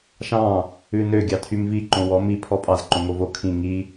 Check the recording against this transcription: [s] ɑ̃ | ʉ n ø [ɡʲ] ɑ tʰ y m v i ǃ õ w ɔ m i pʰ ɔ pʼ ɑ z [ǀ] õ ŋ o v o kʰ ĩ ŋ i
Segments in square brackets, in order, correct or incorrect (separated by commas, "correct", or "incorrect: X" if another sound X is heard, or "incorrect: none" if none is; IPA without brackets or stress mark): incorrect: ʃ, correct, incorrect: ǃ